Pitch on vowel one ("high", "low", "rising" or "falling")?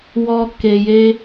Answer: high